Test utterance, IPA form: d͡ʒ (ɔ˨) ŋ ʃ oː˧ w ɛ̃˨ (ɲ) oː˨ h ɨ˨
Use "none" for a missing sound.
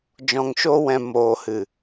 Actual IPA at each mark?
ɔ̃˨, m

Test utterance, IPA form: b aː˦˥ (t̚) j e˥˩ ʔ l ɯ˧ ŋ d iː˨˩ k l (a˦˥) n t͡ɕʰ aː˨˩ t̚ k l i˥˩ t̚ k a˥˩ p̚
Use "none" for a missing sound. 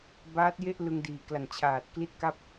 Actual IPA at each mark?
t̚, a˨˩

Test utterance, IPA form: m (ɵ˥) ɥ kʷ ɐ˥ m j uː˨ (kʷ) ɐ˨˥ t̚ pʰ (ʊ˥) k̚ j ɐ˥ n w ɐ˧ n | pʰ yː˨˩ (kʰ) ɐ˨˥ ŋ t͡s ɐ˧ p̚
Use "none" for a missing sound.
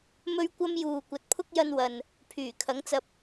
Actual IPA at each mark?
ɵ˥, kʷ, ʊ˥, kʰ

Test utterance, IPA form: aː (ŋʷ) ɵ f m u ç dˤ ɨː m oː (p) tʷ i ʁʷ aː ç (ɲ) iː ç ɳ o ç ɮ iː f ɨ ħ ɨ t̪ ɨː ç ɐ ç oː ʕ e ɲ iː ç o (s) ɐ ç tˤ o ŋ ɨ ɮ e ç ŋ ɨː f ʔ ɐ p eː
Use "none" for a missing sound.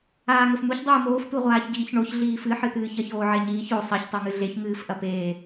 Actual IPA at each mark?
ŋ, f, ɟ, sˤ

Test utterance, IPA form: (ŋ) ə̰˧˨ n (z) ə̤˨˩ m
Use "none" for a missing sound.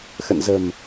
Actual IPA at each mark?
x, z

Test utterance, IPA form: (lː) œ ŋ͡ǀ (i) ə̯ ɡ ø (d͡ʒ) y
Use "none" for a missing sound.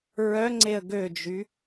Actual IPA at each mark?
ɹ, e, d͡ʒ

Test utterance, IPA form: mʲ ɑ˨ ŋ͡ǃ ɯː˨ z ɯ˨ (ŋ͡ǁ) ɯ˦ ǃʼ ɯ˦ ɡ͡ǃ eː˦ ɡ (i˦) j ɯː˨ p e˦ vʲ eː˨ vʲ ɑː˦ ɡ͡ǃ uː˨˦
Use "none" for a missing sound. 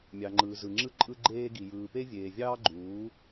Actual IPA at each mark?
ŋ͡ǁ, i˨

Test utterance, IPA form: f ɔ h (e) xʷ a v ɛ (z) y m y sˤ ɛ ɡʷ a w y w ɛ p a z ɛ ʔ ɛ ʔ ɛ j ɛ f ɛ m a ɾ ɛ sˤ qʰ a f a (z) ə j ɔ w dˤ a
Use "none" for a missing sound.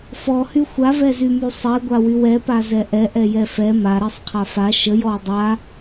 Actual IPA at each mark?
y, z, ʃ

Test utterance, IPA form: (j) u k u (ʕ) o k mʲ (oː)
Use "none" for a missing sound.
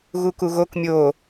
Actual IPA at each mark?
ɣ, ɣ, oː

